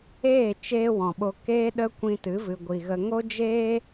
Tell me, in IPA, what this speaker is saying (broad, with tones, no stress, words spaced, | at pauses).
eː˦˨ t͡ʃeː˦wɔ̃˨ɓo˧ keː˦ɗə˦kʷĩ˧ tɨ˨˦vɨ˨ɡʷi˨ɣə˧ ŋo˦d͡ʒeː˦